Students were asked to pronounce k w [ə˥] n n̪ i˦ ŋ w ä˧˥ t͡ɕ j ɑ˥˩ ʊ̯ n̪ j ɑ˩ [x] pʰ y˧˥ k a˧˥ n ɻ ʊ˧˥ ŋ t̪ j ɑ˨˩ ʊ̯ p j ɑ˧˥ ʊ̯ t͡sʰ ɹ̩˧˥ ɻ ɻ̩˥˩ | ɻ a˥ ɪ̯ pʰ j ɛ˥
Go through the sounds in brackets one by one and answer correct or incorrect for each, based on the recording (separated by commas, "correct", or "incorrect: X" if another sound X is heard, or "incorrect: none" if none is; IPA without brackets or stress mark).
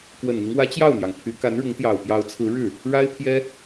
incorrect: ə˨˩, incorrect: ŋ